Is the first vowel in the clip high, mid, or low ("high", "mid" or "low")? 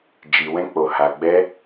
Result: high